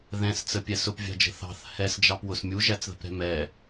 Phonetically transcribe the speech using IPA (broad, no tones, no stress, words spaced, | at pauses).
ðɛ̃st͡səpʲɛ sʊpvʲɑ̤d͡ʒə̤ θɑ̤θ hɛsd͡ʒɑpwʊs mʲuʒæt͡sðə̤pɾɛ̤ mɛ